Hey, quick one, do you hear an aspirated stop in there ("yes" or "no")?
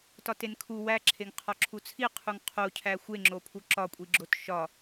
yes